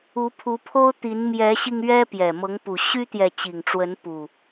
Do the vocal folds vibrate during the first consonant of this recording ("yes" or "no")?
no